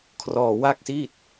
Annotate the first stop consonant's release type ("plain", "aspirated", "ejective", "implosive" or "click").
aspirated